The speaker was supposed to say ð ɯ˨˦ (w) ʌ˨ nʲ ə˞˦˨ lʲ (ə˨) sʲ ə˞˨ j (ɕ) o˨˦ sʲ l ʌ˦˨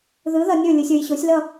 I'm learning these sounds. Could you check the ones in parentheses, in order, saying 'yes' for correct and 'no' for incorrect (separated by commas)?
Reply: no, no, yes